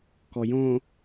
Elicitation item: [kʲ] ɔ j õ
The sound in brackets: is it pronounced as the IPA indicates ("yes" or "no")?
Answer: no